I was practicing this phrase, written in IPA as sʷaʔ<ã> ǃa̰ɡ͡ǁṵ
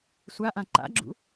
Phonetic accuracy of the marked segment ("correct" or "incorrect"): correct